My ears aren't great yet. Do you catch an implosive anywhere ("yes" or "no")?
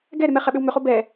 yes